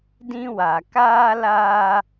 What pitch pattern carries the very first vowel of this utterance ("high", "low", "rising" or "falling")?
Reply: high